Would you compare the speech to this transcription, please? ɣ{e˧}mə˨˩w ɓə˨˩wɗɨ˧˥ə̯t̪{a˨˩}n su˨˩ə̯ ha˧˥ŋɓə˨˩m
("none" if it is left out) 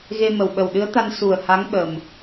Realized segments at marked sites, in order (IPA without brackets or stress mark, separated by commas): e˧, a˧